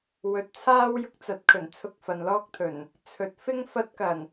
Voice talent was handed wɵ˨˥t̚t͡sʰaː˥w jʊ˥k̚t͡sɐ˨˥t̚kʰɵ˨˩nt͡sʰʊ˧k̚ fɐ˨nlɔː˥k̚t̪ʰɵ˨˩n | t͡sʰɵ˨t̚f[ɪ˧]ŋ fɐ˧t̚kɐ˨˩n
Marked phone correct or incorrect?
incorrect: ɪ˥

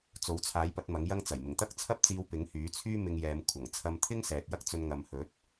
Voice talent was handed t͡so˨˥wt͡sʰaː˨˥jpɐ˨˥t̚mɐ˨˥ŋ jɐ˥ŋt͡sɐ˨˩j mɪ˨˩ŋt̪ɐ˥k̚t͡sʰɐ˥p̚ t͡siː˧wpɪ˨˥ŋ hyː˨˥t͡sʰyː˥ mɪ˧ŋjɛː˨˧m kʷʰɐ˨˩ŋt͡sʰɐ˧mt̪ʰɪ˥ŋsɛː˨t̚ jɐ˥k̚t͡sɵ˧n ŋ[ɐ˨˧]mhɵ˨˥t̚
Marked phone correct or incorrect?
incorrect: ɐ˨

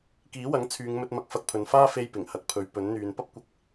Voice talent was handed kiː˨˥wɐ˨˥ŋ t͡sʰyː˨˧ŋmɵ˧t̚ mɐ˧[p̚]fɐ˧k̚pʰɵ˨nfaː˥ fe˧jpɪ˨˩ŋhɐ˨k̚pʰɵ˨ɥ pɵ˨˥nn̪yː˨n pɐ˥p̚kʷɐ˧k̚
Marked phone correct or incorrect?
incorrect: k̚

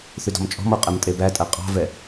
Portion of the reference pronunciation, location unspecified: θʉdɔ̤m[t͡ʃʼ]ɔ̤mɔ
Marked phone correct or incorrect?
correct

